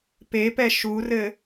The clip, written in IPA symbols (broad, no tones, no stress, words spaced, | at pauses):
pepɛ ʃurɘ